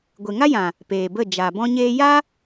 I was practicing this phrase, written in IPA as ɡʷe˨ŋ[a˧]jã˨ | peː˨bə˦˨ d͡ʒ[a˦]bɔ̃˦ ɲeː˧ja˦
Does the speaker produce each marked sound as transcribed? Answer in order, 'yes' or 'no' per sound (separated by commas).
no, no